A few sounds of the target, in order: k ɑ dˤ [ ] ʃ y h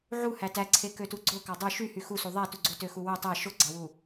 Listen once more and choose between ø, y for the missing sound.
ø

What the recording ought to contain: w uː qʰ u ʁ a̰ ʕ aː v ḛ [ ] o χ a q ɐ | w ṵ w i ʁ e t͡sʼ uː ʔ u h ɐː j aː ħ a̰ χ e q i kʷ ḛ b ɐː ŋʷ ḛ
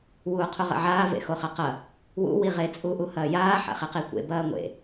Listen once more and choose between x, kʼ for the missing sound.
x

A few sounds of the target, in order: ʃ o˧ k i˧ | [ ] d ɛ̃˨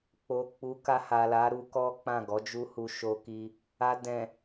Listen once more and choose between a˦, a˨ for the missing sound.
a˨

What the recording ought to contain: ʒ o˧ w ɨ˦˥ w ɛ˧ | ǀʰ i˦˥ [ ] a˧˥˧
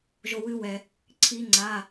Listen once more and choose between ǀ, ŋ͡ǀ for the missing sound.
ŋ͡ǀ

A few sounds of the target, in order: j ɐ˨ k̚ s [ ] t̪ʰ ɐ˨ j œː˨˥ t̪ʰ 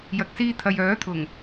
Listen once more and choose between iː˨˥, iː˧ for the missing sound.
iː˧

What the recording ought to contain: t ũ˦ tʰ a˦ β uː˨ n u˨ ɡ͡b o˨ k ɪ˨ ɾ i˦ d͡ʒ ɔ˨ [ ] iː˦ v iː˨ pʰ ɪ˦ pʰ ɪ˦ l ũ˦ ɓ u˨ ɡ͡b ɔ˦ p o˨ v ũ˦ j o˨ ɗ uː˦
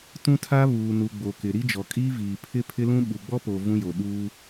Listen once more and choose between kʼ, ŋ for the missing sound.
kʼ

